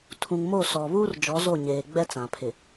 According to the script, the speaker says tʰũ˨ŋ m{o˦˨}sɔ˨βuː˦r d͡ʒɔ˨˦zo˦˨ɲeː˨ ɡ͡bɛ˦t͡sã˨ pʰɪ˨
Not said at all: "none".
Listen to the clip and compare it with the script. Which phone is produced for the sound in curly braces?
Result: o˦˨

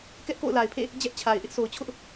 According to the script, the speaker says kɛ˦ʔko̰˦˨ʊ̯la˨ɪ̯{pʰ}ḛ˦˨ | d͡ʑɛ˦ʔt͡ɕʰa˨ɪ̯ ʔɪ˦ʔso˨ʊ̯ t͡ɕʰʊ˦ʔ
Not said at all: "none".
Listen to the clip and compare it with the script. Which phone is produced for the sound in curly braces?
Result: pʰ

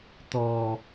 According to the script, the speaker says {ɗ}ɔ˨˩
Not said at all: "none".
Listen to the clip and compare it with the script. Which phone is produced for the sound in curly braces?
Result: t̪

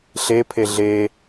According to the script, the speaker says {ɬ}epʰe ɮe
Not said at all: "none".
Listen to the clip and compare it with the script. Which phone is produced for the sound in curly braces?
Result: ɬ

